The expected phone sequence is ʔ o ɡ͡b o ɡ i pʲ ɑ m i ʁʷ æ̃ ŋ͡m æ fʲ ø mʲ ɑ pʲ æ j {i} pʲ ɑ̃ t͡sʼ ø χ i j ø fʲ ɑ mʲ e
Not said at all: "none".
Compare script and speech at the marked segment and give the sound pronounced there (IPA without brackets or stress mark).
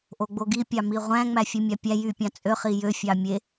y